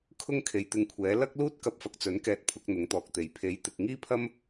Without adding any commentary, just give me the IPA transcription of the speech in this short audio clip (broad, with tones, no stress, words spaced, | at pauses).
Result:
kʰʊ˥ŋkʰe˨jt̪ɪ˧ŋkʷʰɛː˨˥ lɐ˥k̚ luː˥t̚kɐ˧p̚fɐ˨k̚t͡sɵ˨˥n kɛː˧t̚pʰʊ˨˥k̚ n̪ʊ˨˥ŋt̪ɔː˨k̚t̪e˨j pʰe˨˥jt̪ɪ˨k̚ŋiː˥pʰɐ˥m